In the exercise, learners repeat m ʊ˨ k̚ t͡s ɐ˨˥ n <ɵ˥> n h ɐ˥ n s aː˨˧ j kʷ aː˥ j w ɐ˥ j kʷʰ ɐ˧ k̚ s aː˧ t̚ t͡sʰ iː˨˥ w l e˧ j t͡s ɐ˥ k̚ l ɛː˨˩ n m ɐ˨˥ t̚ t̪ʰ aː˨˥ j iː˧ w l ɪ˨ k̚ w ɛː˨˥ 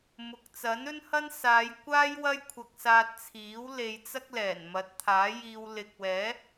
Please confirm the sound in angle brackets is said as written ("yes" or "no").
yes